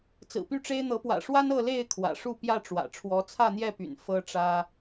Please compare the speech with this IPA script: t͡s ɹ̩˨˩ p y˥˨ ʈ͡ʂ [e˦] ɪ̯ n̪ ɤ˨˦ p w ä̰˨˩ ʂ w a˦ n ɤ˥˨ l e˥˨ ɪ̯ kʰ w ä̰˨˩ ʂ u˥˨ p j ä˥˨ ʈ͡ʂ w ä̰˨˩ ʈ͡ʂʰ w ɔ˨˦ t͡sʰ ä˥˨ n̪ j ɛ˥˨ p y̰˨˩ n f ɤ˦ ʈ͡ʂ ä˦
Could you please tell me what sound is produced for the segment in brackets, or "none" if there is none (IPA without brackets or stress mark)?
e˦